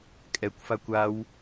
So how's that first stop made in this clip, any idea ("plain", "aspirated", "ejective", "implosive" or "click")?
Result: ejective